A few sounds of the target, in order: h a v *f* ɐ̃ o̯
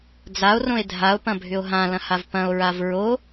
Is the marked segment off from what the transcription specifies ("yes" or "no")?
yes